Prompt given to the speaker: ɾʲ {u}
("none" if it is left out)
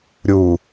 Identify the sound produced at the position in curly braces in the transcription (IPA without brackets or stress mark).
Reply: u